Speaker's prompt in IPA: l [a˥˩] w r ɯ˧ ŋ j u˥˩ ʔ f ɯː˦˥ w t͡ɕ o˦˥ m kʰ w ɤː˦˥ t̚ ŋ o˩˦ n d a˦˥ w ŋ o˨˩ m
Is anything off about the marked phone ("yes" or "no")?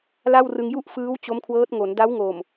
no